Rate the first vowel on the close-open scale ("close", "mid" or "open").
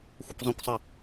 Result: open